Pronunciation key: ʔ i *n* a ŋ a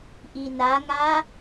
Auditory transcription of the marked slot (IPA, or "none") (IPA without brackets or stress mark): n